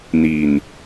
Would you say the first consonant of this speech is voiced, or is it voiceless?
voiced